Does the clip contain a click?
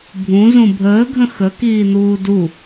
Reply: no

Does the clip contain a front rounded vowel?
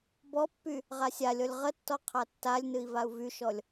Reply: yes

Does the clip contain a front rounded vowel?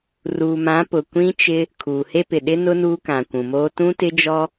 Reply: no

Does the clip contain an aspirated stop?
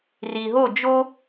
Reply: no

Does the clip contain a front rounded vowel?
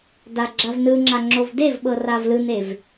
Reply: no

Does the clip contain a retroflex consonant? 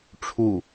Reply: yes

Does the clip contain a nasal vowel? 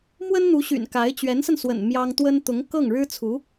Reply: no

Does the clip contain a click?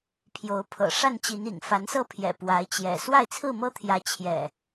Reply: no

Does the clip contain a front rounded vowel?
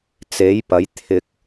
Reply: no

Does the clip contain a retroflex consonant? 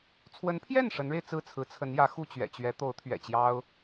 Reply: yes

